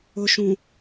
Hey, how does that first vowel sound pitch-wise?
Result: low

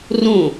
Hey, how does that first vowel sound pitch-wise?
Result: falling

